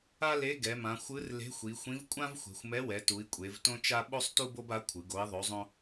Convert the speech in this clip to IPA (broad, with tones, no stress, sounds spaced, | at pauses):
a˥ l e˧˥ ɡ ɛ˩˧ m ã˩˧ xʷ ɯ˧˥ r l e̤˧˥ xʷ i˩˧ xʷ ĩ˧˥ v kʷʼ ã˥ v xʷ e̤˩˧ xʷ m ɛ˧˥ w ɛ˩˧ t u˩˧ i̯ kʷʼ e˩˧ v t õ˥ t͡ʃ a˥ ɓ o˥ sˤ t u˥ b o˥ b a˧˥ kʷʰ ɯ˩˧ ɡ o˧˥ i̯ ðˤ o˧˥ zˤ õ˥